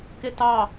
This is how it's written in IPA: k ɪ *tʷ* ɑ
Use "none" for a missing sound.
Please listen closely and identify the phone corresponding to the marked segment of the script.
t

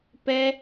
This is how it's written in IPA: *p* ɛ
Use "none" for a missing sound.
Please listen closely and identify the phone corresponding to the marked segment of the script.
p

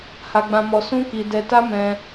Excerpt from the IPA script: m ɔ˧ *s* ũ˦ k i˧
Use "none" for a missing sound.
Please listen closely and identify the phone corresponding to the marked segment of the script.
s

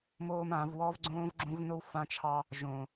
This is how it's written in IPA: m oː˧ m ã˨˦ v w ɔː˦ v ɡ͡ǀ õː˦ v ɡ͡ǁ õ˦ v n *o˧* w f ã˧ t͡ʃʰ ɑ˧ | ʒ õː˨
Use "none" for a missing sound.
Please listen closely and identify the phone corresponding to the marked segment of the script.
o˦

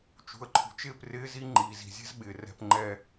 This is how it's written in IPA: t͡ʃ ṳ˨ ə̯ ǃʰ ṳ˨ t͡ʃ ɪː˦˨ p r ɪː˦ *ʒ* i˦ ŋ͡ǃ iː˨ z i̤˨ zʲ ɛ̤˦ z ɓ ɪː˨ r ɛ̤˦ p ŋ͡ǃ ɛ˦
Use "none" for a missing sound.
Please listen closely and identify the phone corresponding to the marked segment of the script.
z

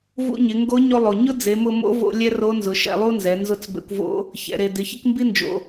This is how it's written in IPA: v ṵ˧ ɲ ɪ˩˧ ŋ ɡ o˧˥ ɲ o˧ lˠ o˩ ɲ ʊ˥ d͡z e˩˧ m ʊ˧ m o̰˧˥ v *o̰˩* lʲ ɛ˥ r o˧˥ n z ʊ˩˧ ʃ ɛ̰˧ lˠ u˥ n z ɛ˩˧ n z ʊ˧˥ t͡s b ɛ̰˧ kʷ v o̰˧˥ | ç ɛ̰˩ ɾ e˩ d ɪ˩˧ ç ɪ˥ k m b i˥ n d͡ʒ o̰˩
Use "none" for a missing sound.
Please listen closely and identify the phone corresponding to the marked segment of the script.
o̰˧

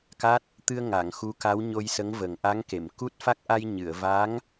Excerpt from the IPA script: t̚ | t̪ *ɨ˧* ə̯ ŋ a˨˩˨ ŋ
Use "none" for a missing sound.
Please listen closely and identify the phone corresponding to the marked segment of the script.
ɨ˧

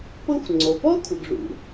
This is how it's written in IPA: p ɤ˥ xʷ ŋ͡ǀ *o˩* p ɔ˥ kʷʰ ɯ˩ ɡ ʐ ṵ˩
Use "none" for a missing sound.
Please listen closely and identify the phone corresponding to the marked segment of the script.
o˩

